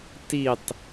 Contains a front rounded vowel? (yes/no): no